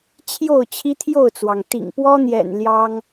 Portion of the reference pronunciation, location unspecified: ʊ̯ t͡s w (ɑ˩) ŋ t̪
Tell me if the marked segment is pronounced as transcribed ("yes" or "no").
yes